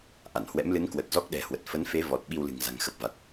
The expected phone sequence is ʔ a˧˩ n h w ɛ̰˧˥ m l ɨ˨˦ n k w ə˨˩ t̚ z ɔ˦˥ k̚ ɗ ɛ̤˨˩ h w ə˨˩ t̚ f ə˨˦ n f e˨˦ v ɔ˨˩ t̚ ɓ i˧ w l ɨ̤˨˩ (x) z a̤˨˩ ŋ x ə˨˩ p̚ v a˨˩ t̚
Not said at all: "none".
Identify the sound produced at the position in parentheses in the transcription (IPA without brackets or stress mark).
ŋ